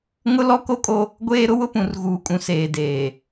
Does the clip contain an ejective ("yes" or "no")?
yes